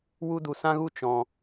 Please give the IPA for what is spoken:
wu˦du˧sã˦ɣu˦ t͡ʃɔ̃˧

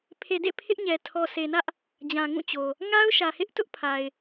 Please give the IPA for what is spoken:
pʰe˨dḛ˦˨ pʰɪ˦ʔɲɛ˨ tʰɔ˨se˨nä˦ʔ | d͡ʑã˨ŋũ˦˨t͡ɕo˨ | ŋa˦ʊ̯ʃä˨hɪ˦ʔ tʊ˦ʔ pʰa˨ɪ̯

